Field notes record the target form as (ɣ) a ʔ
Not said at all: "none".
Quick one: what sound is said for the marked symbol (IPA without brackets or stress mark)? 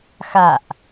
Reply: x